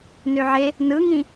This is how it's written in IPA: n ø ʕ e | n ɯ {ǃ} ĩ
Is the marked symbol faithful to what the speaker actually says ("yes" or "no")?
no